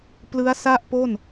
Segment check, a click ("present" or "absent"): absent